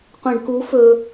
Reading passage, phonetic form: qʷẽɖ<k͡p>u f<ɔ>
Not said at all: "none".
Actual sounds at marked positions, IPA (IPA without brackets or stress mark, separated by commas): k, ɵ